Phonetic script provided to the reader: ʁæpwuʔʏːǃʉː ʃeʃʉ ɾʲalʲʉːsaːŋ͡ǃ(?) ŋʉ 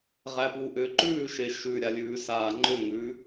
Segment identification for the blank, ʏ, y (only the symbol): ʏ